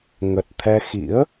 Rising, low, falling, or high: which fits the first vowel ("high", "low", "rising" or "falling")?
low